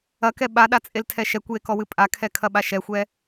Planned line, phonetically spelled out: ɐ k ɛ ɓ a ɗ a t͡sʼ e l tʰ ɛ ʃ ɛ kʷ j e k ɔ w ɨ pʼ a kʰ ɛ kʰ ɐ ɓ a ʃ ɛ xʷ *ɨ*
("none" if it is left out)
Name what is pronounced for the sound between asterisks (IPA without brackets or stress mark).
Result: ɛ